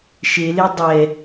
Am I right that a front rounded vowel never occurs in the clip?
yes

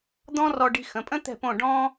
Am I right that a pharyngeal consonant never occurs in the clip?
yes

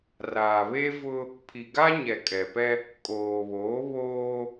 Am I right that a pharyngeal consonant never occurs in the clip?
yes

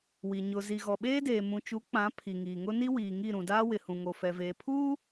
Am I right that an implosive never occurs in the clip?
no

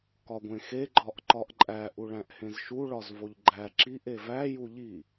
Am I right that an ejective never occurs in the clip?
no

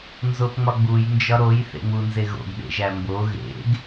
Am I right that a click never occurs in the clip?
yes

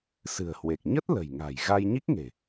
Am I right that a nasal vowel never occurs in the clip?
yes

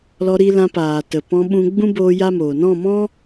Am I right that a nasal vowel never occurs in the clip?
no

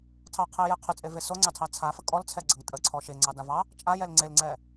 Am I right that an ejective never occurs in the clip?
no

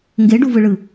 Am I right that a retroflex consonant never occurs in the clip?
no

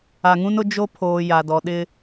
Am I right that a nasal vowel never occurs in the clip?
no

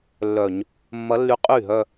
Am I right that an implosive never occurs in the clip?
yes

